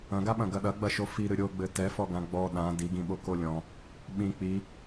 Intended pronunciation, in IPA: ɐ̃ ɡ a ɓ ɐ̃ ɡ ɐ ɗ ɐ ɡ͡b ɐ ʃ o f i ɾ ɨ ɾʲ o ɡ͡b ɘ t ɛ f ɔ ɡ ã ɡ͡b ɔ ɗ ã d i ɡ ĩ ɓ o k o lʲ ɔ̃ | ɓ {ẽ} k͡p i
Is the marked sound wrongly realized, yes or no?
yes